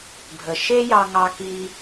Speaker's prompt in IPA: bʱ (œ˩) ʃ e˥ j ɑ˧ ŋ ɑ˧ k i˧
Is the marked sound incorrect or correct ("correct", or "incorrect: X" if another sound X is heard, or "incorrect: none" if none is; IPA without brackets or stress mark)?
incorrect: ə˩